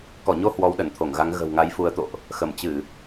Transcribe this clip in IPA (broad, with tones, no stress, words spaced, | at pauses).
kɔ˧˩ɲo˧ hwɔ˨˦wɗə˧˩nt̪ʰo˧˩ŋɣa˨˦ŋ ɣə̤˨˩wŋa˨˦jfu˨˦ə̯t̪o̰˧˨ʔ | xə˧˩mt͡ɕɨ˧˩˨